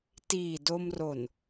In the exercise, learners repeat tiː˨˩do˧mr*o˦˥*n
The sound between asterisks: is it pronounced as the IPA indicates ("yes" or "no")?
no